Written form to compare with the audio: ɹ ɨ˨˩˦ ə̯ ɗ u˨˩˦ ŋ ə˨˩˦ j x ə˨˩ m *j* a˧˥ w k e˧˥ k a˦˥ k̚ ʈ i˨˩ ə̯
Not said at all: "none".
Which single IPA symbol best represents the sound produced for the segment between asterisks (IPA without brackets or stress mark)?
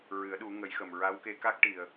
ɹ